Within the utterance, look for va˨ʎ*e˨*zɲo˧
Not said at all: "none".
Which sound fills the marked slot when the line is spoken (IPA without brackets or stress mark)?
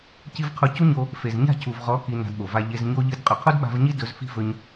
e˨